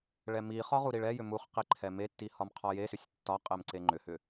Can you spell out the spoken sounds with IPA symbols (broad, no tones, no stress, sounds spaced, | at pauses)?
ɭ ɛ m i χ ɒ ʁ u ɾ i ɭ ɛ j ʏ m u χ q i ǃʰ ɛ m e tː i h ɒ m qʰ ɒ j e s ʏ sʲ tː ɒ qʼ e m ǀ e ŋ͡ǃ ʏ h ʏ